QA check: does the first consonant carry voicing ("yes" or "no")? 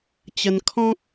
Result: no